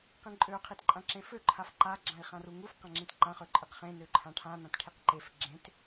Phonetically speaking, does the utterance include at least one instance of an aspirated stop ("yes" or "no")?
yes